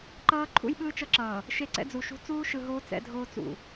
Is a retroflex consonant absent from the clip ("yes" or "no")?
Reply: yes